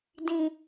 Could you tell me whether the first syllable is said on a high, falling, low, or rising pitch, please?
high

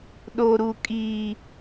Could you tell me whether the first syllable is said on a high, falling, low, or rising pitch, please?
low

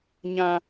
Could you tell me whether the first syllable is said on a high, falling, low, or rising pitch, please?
high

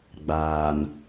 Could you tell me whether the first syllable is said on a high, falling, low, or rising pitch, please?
low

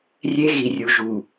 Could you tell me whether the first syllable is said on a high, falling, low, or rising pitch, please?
high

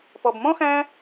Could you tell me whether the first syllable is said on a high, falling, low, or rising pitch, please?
low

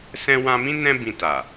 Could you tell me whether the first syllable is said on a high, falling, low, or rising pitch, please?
high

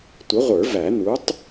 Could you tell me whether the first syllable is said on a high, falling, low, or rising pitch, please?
rising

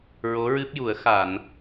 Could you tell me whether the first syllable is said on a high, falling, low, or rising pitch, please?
rising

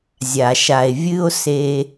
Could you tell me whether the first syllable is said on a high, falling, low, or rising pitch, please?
low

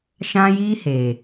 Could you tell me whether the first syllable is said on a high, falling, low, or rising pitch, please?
high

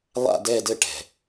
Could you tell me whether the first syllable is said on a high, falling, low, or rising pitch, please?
falling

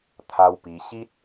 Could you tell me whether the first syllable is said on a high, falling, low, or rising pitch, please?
high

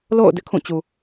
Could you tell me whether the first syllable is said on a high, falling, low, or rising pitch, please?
falling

